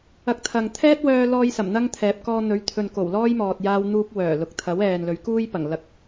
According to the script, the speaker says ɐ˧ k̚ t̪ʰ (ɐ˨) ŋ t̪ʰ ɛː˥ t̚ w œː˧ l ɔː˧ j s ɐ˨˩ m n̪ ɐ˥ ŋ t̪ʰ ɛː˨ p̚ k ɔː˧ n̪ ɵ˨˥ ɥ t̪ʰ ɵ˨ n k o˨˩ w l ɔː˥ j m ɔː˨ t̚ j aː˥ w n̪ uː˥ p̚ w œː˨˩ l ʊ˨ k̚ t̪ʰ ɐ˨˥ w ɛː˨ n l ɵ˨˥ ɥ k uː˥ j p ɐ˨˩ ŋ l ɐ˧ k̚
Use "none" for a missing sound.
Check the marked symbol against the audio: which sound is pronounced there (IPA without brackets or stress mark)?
ɐ˨